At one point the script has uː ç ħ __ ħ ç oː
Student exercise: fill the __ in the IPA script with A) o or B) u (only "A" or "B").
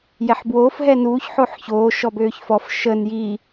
A